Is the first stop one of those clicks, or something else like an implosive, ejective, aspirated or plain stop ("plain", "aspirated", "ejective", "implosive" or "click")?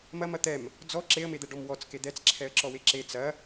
plain